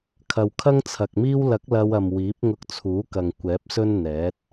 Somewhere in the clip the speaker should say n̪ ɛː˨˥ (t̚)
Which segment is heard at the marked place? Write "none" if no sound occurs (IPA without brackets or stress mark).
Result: t̚